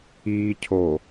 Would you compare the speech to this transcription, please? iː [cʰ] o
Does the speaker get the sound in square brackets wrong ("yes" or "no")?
no